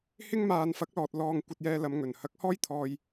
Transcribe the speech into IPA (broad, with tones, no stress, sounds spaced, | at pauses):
h ɪ˥ ŋ m aː˧ n f ɐ˨˥ k̚ l ɔː˨ t̚ l ɔː˧ ŋ kʷ ɐ˧ t̚ j ɛː˧ l ɐ˨˧ m ŋ ɵ˨˩ n h ɐ˨˥ k̚ h ɔː˥ j t̪ʰ ɔː˧ j